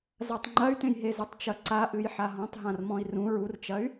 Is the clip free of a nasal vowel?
no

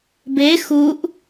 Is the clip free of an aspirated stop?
yes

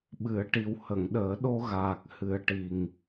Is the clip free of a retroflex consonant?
no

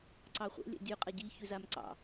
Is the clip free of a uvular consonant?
no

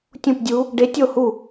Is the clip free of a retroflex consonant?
no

